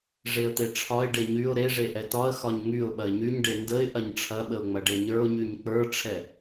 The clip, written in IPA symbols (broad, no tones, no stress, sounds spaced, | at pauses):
ʐ e ə̯ t̪ e ʈ͡ʂʰ ɒ ɪ̯ ɖ e ɲ y ʊ̯ ɾ e ʐ e ʔ ɛ t ɒ ə̯ x ɒ ɲ ŋ y ʊ̯ ɓ ɐ ɪ̯ ɲ y ɲ ɖ e n d ə ɪ̯ ʔ ɐ ɲ ʈ͡ʂʰ ɐ ɓ ə ʊ̯ ŋ͡m ɐ ɖ e ɲ ə˞ ʊ̯ ɲ y ɲ k͡p ə˞ ʈ͡ʂʰ ɛ